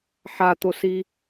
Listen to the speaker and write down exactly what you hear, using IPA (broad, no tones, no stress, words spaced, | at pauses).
ħat̪osi